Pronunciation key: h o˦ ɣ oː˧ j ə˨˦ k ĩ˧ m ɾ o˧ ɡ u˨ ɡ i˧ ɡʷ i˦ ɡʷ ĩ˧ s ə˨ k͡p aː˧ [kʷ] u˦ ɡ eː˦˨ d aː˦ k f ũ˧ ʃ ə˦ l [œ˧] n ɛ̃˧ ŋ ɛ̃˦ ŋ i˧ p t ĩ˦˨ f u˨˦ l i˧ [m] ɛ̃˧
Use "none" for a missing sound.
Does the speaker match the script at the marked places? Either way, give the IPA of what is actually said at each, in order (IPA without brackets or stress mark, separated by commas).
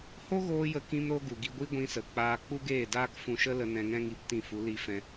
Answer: k͡p, ə˧, f